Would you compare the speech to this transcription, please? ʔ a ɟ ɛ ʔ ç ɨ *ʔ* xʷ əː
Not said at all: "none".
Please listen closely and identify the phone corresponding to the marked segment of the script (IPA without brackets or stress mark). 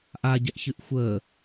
ʔ